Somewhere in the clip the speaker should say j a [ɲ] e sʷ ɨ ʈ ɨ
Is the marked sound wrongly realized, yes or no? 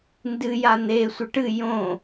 yes